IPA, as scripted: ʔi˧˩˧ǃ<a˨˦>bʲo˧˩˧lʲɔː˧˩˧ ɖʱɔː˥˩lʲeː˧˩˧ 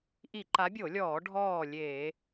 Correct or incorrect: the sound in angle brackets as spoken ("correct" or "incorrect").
correct